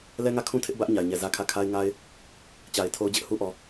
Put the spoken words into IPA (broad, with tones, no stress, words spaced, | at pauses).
lɛ˦ŋä˦˨kʰũ˦tʰɪ˦ʔ bä˦ʔ ɲa˨ɪ̯ɲɛ˨zä˦kʰä˦˨ kʰa˦ɪ̯ŋa˦ɪ̯ | t͡ɕa˨ɪ̯tʰo˦ʊ̯d͡ʑɪ˦ʔ hu˦ʔɔ˨